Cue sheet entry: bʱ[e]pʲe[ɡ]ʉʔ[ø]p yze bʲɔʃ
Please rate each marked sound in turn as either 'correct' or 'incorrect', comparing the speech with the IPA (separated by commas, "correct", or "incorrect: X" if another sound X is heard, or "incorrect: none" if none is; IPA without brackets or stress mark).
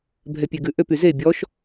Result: incorrect: ɛ, correct, correct